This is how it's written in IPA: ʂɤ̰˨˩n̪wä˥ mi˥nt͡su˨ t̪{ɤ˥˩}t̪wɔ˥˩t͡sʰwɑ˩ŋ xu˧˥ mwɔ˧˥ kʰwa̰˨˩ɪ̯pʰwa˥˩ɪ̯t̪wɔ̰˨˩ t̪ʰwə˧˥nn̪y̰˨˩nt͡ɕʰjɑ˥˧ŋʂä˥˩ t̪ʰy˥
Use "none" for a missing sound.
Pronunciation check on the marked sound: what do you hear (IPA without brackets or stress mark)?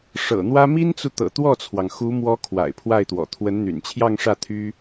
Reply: ɤ̰˨˩